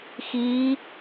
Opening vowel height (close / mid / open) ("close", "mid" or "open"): close